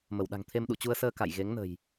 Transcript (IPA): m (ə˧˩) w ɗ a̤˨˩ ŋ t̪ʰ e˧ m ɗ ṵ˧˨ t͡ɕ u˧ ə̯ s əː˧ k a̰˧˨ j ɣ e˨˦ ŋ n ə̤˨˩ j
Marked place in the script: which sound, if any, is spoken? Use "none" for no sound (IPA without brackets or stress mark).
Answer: ə˧˩